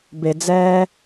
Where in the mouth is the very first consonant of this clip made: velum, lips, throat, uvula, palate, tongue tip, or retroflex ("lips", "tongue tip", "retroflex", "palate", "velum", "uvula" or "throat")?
lips